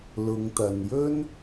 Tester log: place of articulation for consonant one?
alveolar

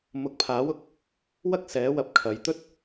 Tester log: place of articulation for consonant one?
labial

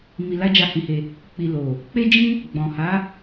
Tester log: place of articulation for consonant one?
labial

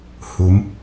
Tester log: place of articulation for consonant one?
glottal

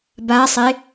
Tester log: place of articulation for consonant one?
labial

